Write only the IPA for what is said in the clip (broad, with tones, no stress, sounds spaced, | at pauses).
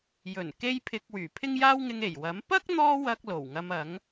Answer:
j ɵ˨˩ n k e˧ j pʰ ɪ˨ k̚ w yː˨˩ pʰ ɪ˥ ŋ j aː˥ w ŋ ɪ˧ ŋ e˨˩ j w ɐ˨˥ m p ɐ˥ k̚ n̪ ɔː˧ w ɐ˨ k̚ l o˨˩ w ŋ ɐ˧ m ɐ˨˥ ŋ